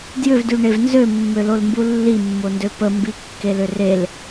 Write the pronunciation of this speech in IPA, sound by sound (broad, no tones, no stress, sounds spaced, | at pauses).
d j ʏ v d y ɳ e v n z ø mː ø l o l m b u lː i mː o n d ø p ə m b i kː e l ʏ r e l